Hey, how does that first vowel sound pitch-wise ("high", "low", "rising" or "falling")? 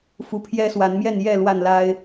rising